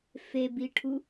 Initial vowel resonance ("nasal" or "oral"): oral